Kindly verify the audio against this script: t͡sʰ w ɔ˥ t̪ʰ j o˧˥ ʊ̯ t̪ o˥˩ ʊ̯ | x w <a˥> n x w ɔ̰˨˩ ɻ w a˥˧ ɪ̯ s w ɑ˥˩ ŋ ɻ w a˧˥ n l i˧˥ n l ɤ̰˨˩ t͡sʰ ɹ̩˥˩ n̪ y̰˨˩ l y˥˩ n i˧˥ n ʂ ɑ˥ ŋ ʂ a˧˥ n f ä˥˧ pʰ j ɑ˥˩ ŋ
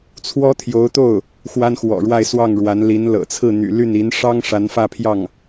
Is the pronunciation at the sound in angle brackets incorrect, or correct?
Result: correct